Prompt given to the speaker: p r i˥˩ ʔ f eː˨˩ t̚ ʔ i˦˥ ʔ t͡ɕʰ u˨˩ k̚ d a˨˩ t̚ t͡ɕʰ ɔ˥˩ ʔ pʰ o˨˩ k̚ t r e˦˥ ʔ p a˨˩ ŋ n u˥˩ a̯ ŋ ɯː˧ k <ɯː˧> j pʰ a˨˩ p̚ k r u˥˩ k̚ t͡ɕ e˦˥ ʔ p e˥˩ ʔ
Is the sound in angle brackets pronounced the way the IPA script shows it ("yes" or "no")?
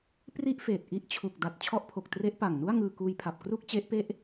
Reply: no